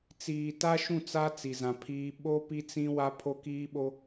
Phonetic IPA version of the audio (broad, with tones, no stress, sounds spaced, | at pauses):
t͡s iː˨ t a˦ ʃ ũ˦˨ t͡s a˦ t͡s i˨ z ã˨ pʰ iː˦ ɓ o˦ p i˦ t͡s ĩ˦ w a˦ pʰ o˦ k iː˦ ɓ o˦